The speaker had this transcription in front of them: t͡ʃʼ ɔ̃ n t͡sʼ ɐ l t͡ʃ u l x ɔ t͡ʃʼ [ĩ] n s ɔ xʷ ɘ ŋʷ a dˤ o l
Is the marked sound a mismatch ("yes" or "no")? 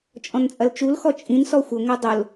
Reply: no